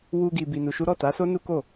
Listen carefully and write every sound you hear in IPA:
w u˧ ɡ i˧ b i˧ n u˧ ʃ u˦ ɾ ɔ˦˨ t a˨˦ s o˦ n u˦ k o˦˨

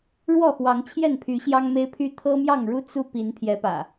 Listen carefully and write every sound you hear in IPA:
ɻ w ɔ˥˨ x w ɑ˨˦ ŋ t͡ɕʰ j ɛ˥˨ n pʰ y˨˦ ɕ j ɑ˦ ŋ m e˦ ɪ̯ pʰ y˦ t̪ʰ ɤ˦ m j ɑ˥˨ ŋ ɻ u˦ t͡s u˦ p i˨˦ n pʰ j ɛ˨˦ p ä̰˨˩

